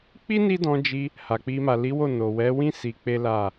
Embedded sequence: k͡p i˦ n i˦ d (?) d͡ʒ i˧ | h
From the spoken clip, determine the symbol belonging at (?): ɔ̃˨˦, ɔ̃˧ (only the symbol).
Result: ɔ̃˧